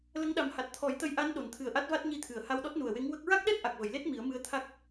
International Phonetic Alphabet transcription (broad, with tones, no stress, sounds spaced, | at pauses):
l ə˧˥ ŋ ɗ a˨˩ m h a˨˩ t̚ t̪ʰ ɔ˨˩˦ j t̪ ə˧˥ j ʔ a˧˥ n ɗ o˨˩˨ n t̪ʰ ɨ˨˩ ə̯ ʔ a˦˥ t̚ v a˦˥ t̚ ɲ i˧ t̪ʰ ɨ˨˩˨ ə̯ h a˧ w ɗ ɔ˦˥ t̚ n u˨˩ ə̯ w e˧˥ ŋ w ə˦˥ k̚ ɹ a˦˥ k̚ ɗ ɛ˦˥ t̚ ʔ a˨˩ k̚ v ə˨˩˨ j l e˦˥ t̚ m i˨˩˦ ə̯ m ɨ˧ ə̯ t̪ʰ a˦˥ k̚